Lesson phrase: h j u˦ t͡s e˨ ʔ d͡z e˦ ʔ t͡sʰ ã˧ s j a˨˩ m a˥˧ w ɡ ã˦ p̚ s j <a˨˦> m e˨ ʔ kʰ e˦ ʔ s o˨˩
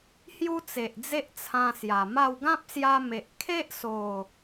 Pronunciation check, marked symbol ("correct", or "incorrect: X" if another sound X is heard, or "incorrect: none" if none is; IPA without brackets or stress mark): incorrect: a˧